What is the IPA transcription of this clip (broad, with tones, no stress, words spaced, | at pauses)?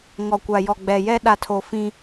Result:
ŋɔ˨kʷa˨jɔ˨ ɡ͡bɛ˨jɛ˦ ɗa˨tʰo˨ fĩ˦